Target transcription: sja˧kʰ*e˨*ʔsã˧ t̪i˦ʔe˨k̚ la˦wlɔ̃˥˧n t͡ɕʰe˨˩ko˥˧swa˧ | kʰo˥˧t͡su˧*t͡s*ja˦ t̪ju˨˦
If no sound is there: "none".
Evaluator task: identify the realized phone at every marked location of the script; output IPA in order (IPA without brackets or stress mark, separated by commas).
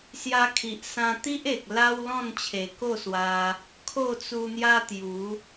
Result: i˨, n̪